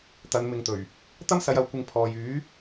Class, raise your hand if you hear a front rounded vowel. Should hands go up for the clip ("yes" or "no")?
yes